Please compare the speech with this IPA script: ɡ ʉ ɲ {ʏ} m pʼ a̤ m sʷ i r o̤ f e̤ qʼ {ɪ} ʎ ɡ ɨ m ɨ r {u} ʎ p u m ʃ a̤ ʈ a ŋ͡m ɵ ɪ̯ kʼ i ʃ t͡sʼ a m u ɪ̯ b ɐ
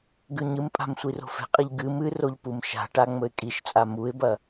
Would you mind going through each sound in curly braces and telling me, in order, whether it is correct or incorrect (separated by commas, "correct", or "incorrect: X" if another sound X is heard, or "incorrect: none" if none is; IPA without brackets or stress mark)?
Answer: incorrect: ɨ, incorrect: i, incorrect: o